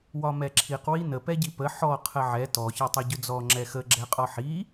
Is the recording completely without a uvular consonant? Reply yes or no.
no